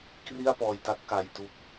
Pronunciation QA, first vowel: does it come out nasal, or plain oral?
oral